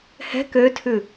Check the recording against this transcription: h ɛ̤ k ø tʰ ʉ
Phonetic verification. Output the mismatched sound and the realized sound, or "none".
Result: none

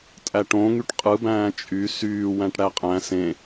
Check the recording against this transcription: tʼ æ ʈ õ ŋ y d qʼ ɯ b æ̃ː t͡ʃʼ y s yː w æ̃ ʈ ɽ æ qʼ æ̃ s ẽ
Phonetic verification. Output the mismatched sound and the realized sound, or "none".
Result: d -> ʈ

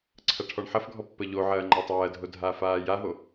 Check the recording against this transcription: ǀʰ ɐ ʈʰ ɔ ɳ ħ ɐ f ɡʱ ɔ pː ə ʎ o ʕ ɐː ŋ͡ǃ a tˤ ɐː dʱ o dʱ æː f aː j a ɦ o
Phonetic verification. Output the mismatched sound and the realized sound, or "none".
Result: æː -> aː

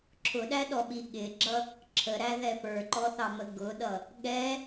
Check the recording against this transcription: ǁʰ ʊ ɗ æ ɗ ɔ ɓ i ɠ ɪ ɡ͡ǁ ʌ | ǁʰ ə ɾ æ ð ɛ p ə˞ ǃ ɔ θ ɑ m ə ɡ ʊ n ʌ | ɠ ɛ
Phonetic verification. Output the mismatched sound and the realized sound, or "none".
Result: n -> ɗ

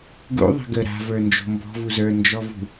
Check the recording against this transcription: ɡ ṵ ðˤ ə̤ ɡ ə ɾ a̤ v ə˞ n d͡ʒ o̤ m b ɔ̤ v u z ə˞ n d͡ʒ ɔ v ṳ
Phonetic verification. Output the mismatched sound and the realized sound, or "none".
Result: none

